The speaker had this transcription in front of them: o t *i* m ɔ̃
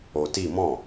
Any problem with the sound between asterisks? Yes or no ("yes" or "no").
no